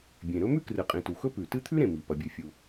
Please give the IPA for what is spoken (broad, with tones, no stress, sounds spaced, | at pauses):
bʲ ẽ˩ ɾ ɵ˥ m ʉ˥ k r ɨ˩ qʼ ĩ˩ t u˩ x ɵ˥ p ʉ˩ t ɨ˥ t̪ʰ ʉ˥ ɾ ẽ˩ m i˩ p ɐ˩ bʲ ʉ˩ fʲ u˩